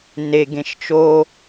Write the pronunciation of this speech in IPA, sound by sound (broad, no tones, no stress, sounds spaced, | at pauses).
n e ɡ ẽ ʃ t͡ʃ o